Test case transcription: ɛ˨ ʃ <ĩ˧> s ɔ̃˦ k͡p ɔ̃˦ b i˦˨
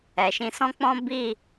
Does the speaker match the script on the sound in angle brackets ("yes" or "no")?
yes